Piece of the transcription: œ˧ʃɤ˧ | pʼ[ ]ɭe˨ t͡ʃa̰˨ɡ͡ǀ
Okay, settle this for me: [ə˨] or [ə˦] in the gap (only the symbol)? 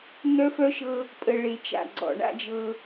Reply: ə˨